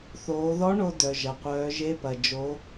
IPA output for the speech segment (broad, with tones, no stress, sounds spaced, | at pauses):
θ oː˩˧ ð ɔ˧˥ ɳ o˧ d œ˩ ʒ ɐ˩ qʷ œː˩˧ ʒ e˧˥ p ɐ˩ d͡ʒ o˩˧